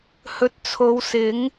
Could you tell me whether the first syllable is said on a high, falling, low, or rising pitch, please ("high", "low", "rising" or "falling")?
low